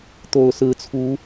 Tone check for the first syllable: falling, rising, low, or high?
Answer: low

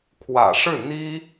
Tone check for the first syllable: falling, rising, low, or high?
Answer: low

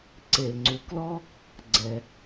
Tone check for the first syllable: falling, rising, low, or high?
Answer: low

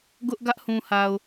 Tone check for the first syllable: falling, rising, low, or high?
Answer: high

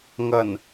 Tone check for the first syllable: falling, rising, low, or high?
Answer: low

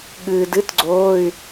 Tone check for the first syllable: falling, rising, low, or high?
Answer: low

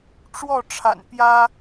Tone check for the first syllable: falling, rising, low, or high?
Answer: falling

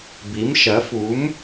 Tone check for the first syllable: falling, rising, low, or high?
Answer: rising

